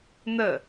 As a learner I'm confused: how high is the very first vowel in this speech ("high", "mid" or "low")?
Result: mid